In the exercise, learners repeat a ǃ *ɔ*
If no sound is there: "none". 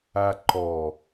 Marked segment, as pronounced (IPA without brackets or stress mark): ɔ